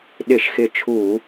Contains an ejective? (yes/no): no